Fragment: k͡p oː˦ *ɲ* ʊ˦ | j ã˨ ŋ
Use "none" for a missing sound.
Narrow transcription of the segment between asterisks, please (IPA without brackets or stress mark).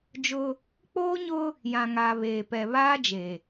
ɲ